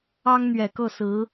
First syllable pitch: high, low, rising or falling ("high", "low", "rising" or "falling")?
high